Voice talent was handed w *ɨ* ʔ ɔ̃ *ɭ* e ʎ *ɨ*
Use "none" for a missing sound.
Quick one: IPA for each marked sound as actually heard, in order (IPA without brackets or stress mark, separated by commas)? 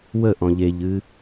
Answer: ə, ʎ, ɨ